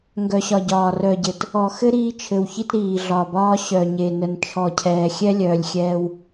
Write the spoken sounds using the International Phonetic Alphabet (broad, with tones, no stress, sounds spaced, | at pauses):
ŋ ɡ œ˨ ɕ ɒ˨ ɟ ɒː˨ r œ˨ ɟ ɘ˨ t | ɔ˨ x ɘ˦ ɾ iː˦ t͡ʃʰ ɘ˨ w ç i˦ t ɾ iː˨ ɮ ɒ˨ b ɒː˦ ɕ œ˨ ɲ e˨ n ə˨ n t͡ʃʰ ɔ˨ cʰ ɛː˨ xʲ ɛ˦ lʲ œː˨ lʲ xʲ ɛː˦ w